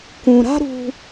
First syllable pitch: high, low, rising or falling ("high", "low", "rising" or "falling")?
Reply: low